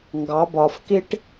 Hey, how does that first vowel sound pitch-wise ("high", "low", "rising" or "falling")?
rising